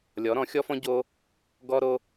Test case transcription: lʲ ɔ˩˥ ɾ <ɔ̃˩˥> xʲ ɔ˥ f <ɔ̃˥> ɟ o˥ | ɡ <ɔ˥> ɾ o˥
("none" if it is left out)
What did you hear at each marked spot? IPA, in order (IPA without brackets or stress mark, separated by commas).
ɔ̃˩˥, ɔ̃˥, ɔ˥